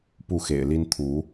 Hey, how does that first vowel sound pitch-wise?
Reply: falling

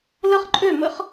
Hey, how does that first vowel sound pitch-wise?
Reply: high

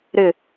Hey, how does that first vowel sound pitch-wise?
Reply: falling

